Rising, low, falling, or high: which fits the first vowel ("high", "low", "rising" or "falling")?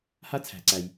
high